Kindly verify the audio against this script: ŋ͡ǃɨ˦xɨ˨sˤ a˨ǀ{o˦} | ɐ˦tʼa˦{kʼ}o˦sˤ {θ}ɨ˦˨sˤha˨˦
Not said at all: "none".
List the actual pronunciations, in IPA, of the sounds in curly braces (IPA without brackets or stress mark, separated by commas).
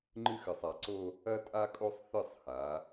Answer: o˦, kʼ, θ